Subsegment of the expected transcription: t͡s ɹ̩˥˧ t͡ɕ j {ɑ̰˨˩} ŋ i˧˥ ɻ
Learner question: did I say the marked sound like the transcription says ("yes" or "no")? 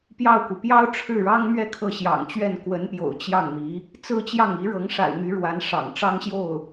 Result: no